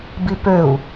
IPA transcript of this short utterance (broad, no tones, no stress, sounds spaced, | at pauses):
b i p ø u̯